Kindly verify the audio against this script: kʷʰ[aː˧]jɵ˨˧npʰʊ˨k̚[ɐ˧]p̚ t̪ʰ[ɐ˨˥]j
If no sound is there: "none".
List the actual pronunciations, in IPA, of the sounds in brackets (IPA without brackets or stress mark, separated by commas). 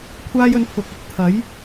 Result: aː˧, ɐ˧, ɐ˨˥